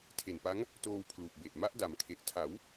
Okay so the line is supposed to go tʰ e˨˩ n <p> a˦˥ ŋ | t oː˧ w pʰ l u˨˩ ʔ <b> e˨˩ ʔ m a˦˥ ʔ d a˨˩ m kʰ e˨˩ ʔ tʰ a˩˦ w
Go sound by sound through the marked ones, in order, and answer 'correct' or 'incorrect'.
correct, correct

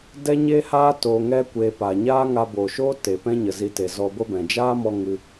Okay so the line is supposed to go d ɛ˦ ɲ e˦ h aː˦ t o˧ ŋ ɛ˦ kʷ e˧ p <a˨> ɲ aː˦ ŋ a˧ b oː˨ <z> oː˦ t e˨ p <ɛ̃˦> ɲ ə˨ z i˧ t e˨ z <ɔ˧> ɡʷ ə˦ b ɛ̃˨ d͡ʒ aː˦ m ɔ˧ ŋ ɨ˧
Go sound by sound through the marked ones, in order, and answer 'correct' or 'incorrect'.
correct, incorrect, correct, correct

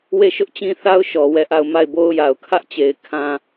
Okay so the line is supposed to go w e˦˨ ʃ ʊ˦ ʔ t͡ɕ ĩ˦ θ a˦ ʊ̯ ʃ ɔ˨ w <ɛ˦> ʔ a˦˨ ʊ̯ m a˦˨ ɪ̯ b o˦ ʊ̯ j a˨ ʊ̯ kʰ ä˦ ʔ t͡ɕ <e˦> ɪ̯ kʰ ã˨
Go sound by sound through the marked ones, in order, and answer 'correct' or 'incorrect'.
incorrect, incorrect

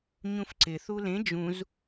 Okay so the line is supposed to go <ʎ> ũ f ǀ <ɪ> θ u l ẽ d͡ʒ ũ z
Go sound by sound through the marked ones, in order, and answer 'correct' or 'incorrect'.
incorrect, correct

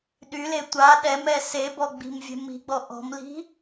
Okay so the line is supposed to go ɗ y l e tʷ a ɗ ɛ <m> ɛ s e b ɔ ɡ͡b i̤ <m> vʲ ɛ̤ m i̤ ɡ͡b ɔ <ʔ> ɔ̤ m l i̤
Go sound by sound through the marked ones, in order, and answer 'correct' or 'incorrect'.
correct, correct, correct

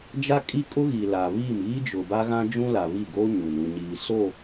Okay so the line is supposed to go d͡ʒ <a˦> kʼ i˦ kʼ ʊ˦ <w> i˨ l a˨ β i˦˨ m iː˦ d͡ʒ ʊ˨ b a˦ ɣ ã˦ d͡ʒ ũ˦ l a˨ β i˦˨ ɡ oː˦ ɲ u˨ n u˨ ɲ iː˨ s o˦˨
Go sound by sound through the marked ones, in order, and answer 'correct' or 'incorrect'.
correct, incorrect

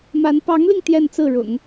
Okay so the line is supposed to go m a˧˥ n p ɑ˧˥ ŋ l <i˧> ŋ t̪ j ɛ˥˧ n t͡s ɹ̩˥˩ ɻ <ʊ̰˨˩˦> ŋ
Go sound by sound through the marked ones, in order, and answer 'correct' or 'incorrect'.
correct, correct

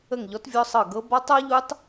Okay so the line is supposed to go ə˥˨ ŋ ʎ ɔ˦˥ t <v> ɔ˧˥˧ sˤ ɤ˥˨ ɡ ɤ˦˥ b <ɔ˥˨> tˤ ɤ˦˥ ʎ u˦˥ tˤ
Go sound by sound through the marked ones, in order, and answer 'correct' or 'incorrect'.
incorrect, incorrect

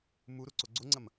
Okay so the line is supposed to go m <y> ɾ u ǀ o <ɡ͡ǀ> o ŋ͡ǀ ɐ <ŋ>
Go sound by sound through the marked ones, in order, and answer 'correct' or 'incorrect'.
incorrect, correct, incorrect

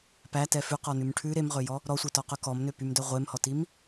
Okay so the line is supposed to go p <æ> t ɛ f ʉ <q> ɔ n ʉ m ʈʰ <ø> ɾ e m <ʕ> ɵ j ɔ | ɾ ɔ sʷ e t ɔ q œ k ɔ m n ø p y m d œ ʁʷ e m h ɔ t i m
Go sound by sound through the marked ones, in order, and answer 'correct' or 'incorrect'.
correct, correct, incorrect, incorrect

